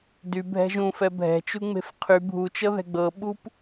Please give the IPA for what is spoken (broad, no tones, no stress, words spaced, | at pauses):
dybʱɛ̤ ʒũfɛ bʱɛ̤t͡ʃuŋ͡me̤f qʰy bʱut͡ʃɤðɛ̤ ɡ͡bɤɓup